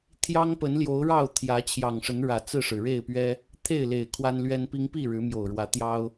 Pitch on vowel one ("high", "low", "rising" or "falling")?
high